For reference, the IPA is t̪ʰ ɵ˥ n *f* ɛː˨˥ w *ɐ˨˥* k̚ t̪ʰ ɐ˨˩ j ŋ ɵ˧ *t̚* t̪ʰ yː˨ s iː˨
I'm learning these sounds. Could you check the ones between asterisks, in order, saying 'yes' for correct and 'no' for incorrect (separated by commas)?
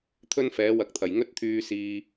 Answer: yes, yes, yes